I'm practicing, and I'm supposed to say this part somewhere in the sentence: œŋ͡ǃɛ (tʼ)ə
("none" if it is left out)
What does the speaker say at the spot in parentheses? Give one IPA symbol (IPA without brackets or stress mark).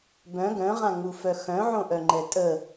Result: tʼ